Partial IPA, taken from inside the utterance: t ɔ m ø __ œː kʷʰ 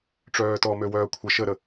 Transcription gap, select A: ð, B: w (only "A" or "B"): B